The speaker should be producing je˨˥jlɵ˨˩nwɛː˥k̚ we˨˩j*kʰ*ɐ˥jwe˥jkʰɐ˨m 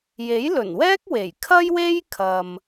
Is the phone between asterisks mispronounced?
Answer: no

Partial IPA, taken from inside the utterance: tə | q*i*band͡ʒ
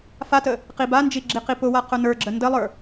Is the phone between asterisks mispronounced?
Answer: no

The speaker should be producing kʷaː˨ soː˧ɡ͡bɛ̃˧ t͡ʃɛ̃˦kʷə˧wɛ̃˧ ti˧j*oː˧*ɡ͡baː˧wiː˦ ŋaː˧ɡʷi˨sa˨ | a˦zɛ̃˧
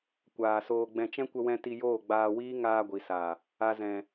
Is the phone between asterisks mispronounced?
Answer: yes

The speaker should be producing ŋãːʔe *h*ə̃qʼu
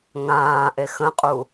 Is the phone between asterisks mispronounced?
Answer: yes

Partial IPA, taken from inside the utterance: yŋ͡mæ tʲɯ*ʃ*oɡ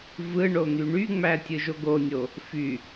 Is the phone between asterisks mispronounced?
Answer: yes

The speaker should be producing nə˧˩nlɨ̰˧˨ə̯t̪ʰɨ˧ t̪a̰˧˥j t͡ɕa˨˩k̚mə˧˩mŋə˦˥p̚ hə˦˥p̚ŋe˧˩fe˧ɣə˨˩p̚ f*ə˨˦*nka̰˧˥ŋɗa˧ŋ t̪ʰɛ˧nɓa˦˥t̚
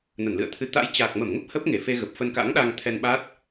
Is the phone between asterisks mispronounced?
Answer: yes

